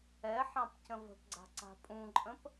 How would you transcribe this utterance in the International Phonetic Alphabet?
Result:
ɛ ħ ɑ̃ p c ə̃ v ə̤ p ɡ͡ǀ a̤ ǀ a̤ pʼ ũ ǃʼ ə̃ p

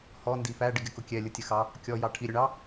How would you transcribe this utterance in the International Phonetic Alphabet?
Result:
h ɔ n d i f æ ɖ ɪ ɡ ɪ k ʊ kʲ ɛ lʲ ʊ tʲ ə x ɑ | kʲ ɔ j ɑ ʈʰ i ɾʲ ʊ ɳ ɑ

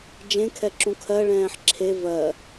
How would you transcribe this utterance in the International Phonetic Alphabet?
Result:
d͡ʒ ẽ kʰ ɛ ǁ ũ kʰ ɜ ɭ ɛ̃ː ħ ǁʰ e v ɜ

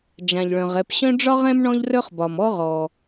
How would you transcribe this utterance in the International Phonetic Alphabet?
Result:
d͡ʒ ã˩ ʎ ɭ œ̃˩ ʁ ɛ˨ p ɕ œ̃˥ ɖ͡ʐ ɒ˥ ʁ ɛ̃˥ m ɳ ɔ̃˥ ʎ r œ˥ χ b ɒ˨ m ɔ˥ ʁ ɔ˨

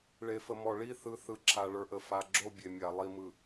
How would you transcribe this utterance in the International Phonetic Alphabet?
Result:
ɭ e˨ f ə˨ m ɔ˨ ɭ i˦˨ θ ɯ˨ θ ɯ˨ ǁʰ a˨ ɭ ə˞˨ ʔ ə˨ f a˨ ɡ͡ǁ o˦˨ bʲ e˨ mʲ a˨ lˠ i˨ m ɯ˨

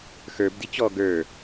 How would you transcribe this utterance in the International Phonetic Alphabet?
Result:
x ə˞ b d i t͡ɕ ɔ ɡ ə˞

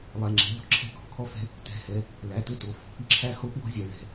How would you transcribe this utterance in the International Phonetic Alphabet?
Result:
lˠ ɛ˩˧˩ ŋ͡ǁ ɛ̤˩˧˩ ʎ ɔ̤˧ ǁʰ ɛ̤˧ k ɔ̤˩˧˩ kʰ ɔ˧ f ɛ̤˧ | t ɛ̤˩˧˩ h ɛ˩˧˩ | l æ˩˧˩ t ɵ˧ t o˩˧˩ f o̤˩˧˩ p ɨ˧ ǁʰ æ˧ h o˧ p w ɔ̤˧ zʲ ɛ˩˧˩ ɭ ɛ̤˩˧˩

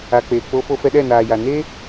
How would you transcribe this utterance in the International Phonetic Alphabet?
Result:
a˨ k͡p eː˨ k͡p o˧ f o˧ f ɛ˧ ɗ ɛ˦˨ n aː˨ j a˨ n e˦

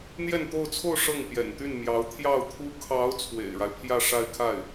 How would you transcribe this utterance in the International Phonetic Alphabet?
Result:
n̪ j ɛ˥˧ n t̪ o˥˧ ʊ̯ t͡sʰ o˥˧ ʊ̯ ʂ ɤ˥˩ ŋ p j ɛ̰˨˩ n t̪ y˥˩ n m j ɑ˧˥ ʊ̯ t̪ʰ j ɑ˥˩ ʊ̯ t̪ʰ u˥ kʰ ɑ˧˥ ʊ̯ t͡sʰ w ḛ˨˩ ɪ̯ ɻ a˦ ɪ̯ pʰ j ä˥˧ ʂ a˥˧ ɪ̯ kʰ a˥˩ ɪ̯

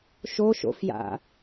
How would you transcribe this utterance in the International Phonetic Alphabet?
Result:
ʃ o ʃ o̰ f j a̰

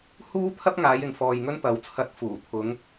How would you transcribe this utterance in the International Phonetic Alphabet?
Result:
h uː˥ t̪ʰ ɐ˥ p̚ ŋ aː˨˧ j ɪ˨ ŋ f ɔː˨ j ŋ ɵ˥ n p ɐ˨˥ w t͡sʰ ɐ˧ t̚ f uː˨˩ t̪ʰ ʊ˨˧ ŋ

